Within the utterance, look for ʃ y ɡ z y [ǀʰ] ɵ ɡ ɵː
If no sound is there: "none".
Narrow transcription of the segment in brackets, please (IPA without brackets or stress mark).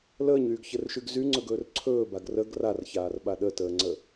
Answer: ŋ͡ǀ